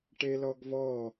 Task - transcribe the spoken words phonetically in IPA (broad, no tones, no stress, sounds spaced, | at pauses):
ʈ e l ɔ ɡ v ɔ